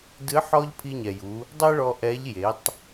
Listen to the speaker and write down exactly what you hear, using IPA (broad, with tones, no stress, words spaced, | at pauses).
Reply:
dɨ˧˥ ħɔ˥ʎ pʰi˧ɲɛ˩ju˩˧ | dˤɛ˥ɭɔ˧ ʔɛ˧˥ʎ je˩˧tˤ